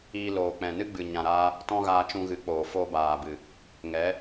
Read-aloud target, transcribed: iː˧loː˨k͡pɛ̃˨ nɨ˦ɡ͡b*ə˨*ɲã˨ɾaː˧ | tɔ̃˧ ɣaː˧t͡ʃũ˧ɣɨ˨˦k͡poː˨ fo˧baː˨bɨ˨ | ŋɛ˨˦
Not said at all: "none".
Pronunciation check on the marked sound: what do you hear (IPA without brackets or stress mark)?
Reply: ɨ˨